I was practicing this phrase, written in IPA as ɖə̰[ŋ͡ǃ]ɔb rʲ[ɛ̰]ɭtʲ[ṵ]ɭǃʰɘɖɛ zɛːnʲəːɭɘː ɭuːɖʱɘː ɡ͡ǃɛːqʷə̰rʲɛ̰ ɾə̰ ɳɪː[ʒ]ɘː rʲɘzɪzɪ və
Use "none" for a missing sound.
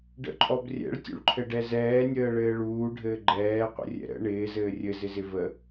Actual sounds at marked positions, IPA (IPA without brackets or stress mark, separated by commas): ǃʼ, ɛ̰, ṵ, z